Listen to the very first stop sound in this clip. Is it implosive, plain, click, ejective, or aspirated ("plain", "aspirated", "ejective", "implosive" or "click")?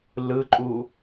click